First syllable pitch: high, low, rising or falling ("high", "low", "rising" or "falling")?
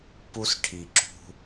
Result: high